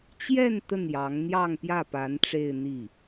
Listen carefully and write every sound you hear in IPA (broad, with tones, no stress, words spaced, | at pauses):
t͡ɕjɛ˥˧n t̪ə˥˩njɑ˧˥ŋ n̪jɑ˥˧ŋpjä˥˩pa˧˥n ʈ͡ʂe˥˧ɪ̯n̪i˥˩